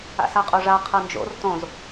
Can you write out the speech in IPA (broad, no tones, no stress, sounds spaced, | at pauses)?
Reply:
a̰ s a qʼ o ʐ a qʰ ɤ n d͡ʒ o̰ r t õ z